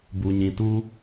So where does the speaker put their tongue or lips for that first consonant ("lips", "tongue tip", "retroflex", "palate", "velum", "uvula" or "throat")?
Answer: lips